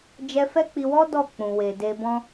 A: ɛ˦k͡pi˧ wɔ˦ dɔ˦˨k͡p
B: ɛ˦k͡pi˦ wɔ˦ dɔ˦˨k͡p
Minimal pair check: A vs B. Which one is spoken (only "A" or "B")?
A